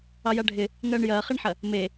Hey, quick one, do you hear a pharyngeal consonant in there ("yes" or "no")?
yes